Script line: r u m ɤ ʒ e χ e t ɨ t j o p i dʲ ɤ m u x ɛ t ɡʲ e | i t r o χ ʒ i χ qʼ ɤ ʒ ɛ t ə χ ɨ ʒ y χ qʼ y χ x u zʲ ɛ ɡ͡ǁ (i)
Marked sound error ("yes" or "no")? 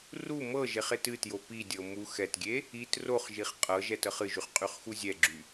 yes